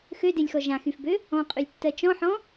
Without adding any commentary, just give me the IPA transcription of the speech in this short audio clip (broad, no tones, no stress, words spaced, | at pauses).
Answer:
xødelʲxɔ ʒãxyfbø | ɔ̃qʼylʲtːɜ t͡ʃɔ̃ħɔ̃